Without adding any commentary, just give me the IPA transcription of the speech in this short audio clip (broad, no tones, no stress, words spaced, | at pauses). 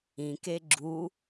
ĩke ɡ͡ǁu